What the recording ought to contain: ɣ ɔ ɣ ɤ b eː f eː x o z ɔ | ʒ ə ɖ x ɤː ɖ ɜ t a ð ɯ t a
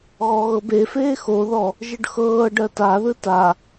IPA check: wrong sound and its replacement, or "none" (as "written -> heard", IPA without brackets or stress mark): z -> ð